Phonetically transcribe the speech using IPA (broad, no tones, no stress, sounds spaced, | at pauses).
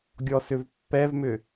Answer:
ɡʲ ɔ s ʏ v pː ɛ v m ʏ